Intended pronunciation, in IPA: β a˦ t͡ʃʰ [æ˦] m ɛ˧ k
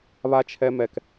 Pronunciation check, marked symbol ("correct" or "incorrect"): incorrect